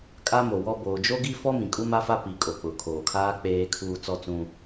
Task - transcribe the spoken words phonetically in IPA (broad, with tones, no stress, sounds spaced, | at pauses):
kʼ a˦ m o˨ w ɔ˦ b oː˨ d͡ʒ o˦ ɡ i˦ f ɔ˦ m ĩ˨ kʼ u˦ m a˦ f a˦ p i˨ kʼ o˨ k͡p ʊ˨ kʰ oː˨ kʰ aː˦ k͡p eː˦ kʰ uː˦ t͡s ɔ˦ t͡s ũ˦